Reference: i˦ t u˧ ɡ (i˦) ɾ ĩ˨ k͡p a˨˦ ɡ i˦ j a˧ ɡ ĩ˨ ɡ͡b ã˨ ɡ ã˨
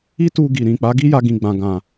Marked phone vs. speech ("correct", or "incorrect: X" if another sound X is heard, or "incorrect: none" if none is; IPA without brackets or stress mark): incorrect: i˨